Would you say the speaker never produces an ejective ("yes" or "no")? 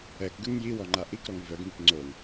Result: yes